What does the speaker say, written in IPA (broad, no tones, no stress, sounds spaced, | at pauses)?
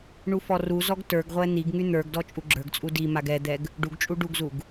ɳ u f ɔ r u z ɔ ɡ t ə˞ ɡ ʁʷ ɛ n̪ i ɡ ŋ y n̪ ə˞ ɡ d ɔ t͡ʃʼ u ɡ͡ǁ ə˞ ɡ t͡sʼ u d i m a ɡ ɛ d̪ ɛ ɡ | ɖ u ɡ t͡ʃʼ u ɖ u ɡ z u ɡ